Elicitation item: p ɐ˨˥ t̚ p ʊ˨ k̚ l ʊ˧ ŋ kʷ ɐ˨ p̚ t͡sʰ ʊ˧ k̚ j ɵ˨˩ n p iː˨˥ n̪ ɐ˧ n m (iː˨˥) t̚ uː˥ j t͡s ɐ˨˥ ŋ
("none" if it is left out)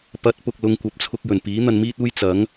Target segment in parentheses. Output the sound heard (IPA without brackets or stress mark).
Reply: iː˥